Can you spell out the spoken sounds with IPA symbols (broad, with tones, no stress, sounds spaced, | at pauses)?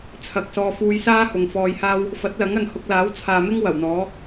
t͡sʰ ɐ˨ k̚ s ɔː˧ f uː˧ j s aː˥ h ʊ˨ ŋ f ɔː˧ j h aː˥ w | f ɐ˨˥ t̚ l ɐ˨˥ ŋ ɐ˨ n h ʊ˧ k̚ l aː˨˥ w t͡sʰ aː˨ m ɪ˥ ŋ w ɐ˨˩ w n̪ ɔː˨˥